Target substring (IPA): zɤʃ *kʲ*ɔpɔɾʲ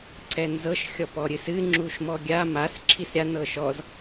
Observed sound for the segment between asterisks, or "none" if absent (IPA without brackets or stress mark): xʲ